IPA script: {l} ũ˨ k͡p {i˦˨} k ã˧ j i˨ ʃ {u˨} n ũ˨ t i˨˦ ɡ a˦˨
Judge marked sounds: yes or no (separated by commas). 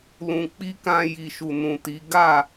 yes, no, yes